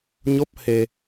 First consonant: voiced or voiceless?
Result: voiced